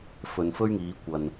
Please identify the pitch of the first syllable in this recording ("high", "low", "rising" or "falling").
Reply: low